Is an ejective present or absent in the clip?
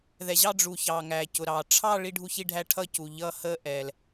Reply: absent